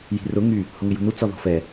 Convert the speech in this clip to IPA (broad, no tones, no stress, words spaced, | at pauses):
ji̤rʊ ŋy | hʊŋɪjṳnu t͡sɔðɔ̤fɛ